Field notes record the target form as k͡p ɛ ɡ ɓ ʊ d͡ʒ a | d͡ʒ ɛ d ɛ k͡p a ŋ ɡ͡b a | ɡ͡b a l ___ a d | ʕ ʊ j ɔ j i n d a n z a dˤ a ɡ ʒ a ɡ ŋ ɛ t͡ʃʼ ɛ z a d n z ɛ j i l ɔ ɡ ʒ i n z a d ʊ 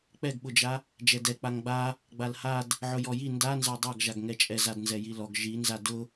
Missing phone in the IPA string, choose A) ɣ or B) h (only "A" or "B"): B